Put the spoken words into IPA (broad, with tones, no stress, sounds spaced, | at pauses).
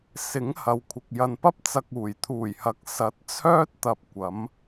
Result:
s ɪ˨˥ ŋ h ɐ˨˧ w kʷʰ ɪ˨ k̚ j ɐ˨ n p ɐ˥ p̚ t͡s ɐ˧ k̚ uː˨˩ j t̪ʰ uː˨˩ j h ɐ˨˥ k̚ s ɐ˨˥ t̚ t͡sʰ œː˥ t̚ t̪ ɐ˧ p̚ kʷ ɐ˨˥ m